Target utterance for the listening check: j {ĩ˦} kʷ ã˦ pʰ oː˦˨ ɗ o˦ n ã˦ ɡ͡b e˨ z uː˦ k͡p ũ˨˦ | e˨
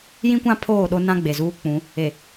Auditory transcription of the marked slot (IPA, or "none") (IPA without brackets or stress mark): ĩ˦